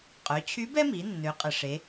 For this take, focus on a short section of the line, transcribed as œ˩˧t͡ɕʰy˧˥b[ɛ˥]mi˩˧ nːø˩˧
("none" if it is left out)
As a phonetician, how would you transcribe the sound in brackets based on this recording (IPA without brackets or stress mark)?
ɛ˥